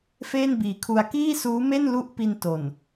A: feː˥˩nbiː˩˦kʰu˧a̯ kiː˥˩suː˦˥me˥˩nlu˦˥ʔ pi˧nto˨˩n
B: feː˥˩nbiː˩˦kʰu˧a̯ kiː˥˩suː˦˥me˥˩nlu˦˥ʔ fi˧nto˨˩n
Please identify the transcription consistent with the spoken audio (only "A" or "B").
A